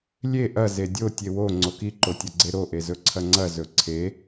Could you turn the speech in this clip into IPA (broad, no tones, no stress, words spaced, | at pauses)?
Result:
lʲe ʔɐ zedʲo tʲewo ŋ͡ǀoki ǃotʲɐɡ͡ǀeɾo ʔezɵǀʰɐŋ͡ǀɐ zɵǀʰe